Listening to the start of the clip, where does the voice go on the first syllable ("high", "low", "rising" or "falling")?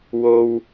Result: low